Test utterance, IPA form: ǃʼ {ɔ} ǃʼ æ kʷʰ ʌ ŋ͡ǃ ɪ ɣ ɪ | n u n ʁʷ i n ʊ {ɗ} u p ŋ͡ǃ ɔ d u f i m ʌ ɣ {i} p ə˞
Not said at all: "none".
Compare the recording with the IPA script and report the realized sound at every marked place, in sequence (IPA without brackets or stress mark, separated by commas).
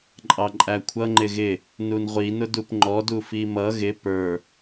ɑ, d, ɪ